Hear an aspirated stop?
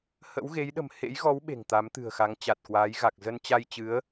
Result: no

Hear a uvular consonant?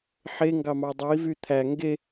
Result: no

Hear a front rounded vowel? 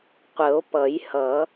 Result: no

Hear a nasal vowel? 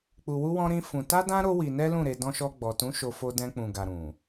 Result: yes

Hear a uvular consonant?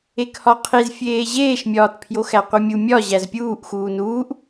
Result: yes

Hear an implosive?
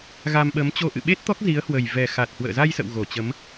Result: yes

